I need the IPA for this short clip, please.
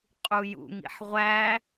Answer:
qʼ u j ṵ ŋ ḭ ħ ʁʷ æ

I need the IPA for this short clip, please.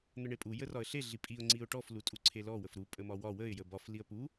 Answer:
n̪ ə ɳ e pʼ u j ə r ɒ ə̯ ɬ e ɮ i pʼ i ʊ̯ ŋ͡ǀ i ʊ̯ ʈ ɔ f l u tʼ u ǀʰ e l ɔ w ə f ɾ u pʼ ə m ɒ w ɒ w ə ɪ̯ j ə b ɒ f l i ə̯ p u

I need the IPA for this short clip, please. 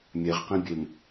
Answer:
mʲ ɛ ʁ q ĩ bʲ e m

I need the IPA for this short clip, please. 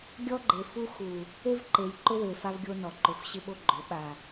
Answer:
ɡʲ ɔ˦ ɡ͡ǃ e˨ f u˦ x u˨ | e˦ v ǃ e˨ j ǃ ʊ˦ w e˨ f a˦ v ɡʲ o˦ n ɔ˨ ǃ ʊ˨ f ɕ ɪ˦ ɓ o˦ ɡ͡ǃ ʊ˨˦ ɓ a˨

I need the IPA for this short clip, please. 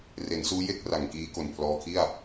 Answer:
r e˩˦ n s uː˦˥ j e˥˩ k̚ r a˨˩ ŋ k iː˦˥ k o˨˩ n pʰ l ɔː˧ kʰ i˥˩ a̯

